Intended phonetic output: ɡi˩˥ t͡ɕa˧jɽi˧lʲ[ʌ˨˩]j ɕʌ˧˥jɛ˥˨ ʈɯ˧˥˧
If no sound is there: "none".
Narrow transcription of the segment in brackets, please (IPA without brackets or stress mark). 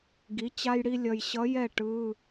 ʌ˨˩